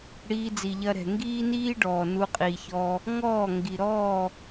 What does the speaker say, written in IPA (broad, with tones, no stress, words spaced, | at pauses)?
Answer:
ɽiː˧d͡zi˨ʎɐ˧ɾɛ̤˨ ŋɡiː˦niː˦ ɖɔː˨nu˧qʼiː˨çɔ˧ | ŋɔː˦˨ ŋɡi˨ ɾɔ˦˨